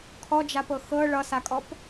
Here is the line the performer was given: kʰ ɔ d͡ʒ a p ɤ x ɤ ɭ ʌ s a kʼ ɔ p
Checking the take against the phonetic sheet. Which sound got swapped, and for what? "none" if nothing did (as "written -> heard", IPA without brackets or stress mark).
none